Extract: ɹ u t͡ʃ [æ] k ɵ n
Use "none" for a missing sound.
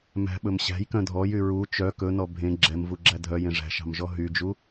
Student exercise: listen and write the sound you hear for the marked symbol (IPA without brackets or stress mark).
œ